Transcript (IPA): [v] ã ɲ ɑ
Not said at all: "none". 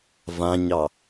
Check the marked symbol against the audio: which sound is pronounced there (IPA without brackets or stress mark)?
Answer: v